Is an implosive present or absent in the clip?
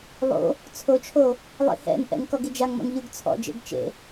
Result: absent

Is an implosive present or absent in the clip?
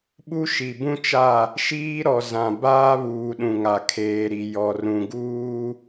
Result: present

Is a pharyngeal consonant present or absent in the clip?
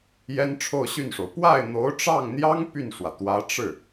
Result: absent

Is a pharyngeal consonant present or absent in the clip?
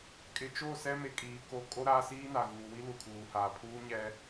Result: absent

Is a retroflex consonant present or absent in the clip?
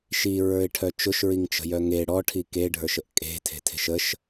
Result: present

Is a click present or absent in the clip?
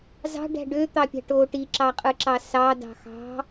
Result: present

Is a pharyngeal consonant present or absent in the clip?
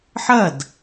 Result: present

